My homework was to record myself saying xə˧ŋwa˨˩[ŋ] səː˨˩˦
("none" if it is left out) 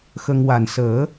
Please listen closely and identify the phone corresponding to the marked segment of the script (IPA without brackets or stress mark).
n